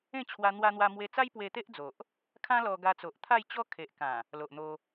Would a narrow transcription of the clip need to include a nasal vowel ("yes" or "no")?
yes